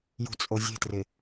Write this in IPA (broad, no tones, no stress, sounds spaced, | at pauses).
j ṳ t͡sʼ o zʲ e̤ t r ɪ